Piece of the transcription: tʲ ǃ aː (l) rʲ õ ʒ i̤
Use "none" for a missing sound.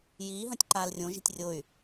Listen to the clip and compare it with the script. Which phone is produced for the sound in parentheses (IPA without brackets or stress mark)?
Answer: l